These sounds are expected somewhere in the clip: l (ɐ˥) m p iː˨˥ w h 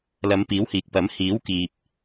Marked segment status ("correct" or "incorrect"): incorrect